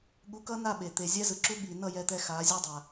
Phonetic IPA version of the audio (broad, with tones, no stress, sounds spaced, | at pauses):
ɠ u˧ k ʌ˦ n a˦˨ ɓ e˨ t̪ e˨ zʲ ɛ˦ z ɯ˨ ǁ u˦ ɠ i˨ n ʌ˦˨ j ɛ˧ t̪ ɛ˧ x a˨˦ zʲ ʌ˦ dˤ a˨